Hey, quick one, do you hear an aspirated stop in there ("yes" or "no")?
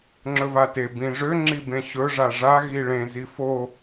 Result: no